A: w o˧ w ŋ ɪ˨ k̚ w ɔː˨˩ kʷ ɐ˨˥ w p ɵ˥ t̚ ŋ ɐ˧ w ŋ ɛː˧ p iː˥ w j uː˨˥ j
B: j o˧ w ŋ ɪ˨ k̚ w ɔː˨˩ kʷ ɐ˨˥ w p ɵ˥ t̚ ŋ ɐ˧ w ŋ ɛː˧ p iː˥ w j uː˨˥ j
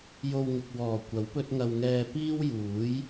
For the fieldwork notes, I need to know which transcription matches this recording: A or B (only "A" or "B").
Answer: B